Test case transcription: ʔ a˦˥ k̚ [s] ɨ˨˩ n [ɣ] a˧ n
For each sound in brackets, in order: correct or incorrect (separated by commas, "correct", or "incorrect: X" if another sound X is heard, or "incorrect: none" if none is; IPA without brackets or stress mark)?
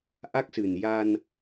correct, incorrect: j